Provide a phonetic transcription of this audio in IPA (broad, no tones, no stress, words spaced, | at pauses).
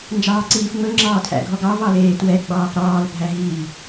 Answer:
nd͡ʒɑːǀiːfŋ͡mɵ ŋ͡ǁɑːtʰæ̰ɡʱɔɡɑ vɑleːtwɛ ɡ͡bɑːfɾɑːl bʱæɦiː